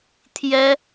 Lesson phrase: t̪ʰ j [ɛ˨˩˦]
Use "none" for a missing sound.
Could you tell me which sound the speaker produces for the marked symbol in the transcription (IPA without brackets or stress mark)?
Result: ɛ˥